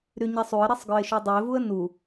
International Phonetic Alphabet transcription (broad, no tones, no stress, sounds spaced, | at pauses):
ɾ y ɲ ɛ sˤ u ə̯ ɾ ɛ sˤ ɡ œ ɪ̯ ʃ u dˤ u ɪ̯ v u ə̯ n u